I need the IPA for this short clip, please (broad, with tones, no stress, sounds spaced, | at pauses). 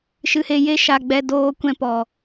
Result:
ʃ ɨ˧ h e˧ j e˦ ʃ a˧ ɡ͡b ɛ˧ d oː˧ kʷ ɛ̃˧ p ɔ˨